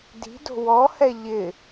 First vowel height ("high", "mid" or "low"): high